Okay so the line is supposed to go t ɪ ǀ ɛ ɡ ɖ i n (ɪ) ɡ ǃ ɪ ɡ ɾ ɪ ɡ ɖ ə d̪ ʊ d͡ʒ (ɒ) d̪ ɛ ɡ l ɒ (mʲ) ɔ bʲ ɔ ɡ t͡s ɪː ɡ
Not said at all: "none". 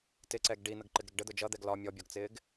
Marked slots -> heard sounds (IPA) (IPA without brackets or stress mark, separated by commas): ə, ʌ, mʲ